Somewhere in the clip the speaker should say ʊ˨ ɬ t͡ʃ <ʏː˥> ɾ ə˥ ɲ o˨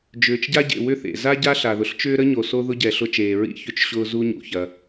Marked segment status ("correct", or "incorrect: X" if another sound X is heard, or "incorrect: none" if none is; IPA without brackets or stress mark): correct